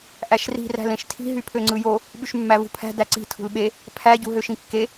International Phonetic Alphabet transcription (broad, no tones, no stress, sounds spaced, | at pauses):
ʔ æ ʃ r i̤ r æ̤ l ẽ ʃ tʰ i̤ ɦ y pʰ ø ŋ͡ǀ ɯ j o | ɓ y ʃ mː æ v ṳ pʰ æ̤ d æ ǀ i̤ tʰ ṳ l ɓ e | pʰ æ ɟ ṳ ɦ ø ʃ ĩ kː e